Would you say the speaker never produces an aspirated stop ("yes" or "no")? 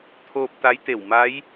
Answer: no